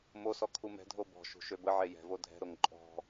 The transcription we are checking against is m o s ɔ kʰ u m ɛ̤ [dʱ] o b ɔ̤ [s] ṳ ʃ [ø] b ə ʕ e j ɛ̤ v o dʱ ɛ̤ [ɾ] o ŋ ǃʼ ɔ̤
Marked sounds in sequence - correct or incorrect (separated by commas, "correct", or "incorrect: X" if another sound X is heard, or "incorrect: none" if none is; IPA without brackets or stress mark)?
correct, incorrect: ʃ, correct, correct